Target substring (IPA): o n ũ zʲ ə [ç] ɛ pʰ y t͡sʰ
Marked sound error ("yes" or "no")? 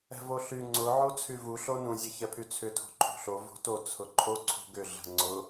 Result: no